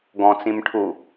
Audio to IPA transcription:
ɡ ɔ̃ t͡s ĩ m ʈʰ u

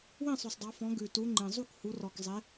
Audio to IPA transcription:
w ĩ˥˨ sˤ ʉ˨˩ sˤ dˤ ɑ˨˦ f ɔ̃˨˦ ɡ ʉ˨˩ t u˨˦ ŋ͡ǃ ĩ˨˩ zˤ u˥˨ k h u˨˦ r ɔ˨˩ k zˤ e˨˦

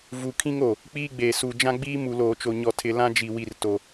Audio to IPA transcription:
v u˨ kʰ ĩ˦ ŋ o˨ | k͡p iː˦ ɡ͡b eː˨ s u˨ d͡ʒ ã˦ ɡ͡b iː˦ m u˨ l oː˨ t͡ʃ o˨ ɲ ɔ˨ tʰ ɪ˨ l ã˦ d͡ʒ i˨ w i˨ r t o˨

